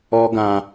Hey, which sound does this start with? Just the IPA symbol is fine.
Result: ɔ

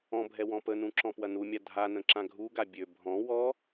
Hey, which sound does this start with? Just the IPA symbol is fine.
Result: ɔ̃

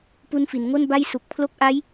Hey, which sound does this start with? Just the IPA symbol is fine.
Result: p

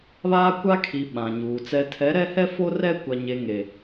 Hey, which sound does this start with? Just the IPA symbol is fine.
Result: β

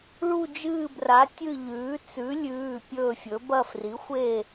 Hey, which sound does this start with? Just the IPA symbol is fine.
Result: ɭ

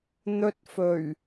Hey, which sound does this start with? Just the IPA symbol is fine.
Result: n̪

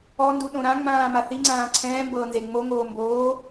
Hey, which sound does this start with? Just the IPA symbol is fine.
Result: ɔ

